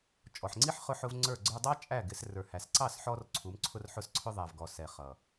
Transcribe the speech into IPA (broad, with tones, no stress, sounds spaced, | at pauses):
t͡ʃʼ ɔ˨ ħ ŋ͡ǀ i˦ ħ χ ʊ˧ ħ ʊ˧ v ŋ͡ǀ ə˞˦˨ ɡ͡ǀ ə˞˦ dˤ ɑ˦ t͡ʃʼ æ˦˨ ɡ ɪ˨˦ s r ə˞˨ h æ˨ s ǀ ɑ˦˨ s ħ ɔ˧ r ǀʰ u˨˦ m ǀʰ ʊ˦ r ħ ʊ˦ s ǀʰ ʊ˦ ðˤ æ˨ v ɡ ɔ˨ s ɛ˨ χ ʌ˨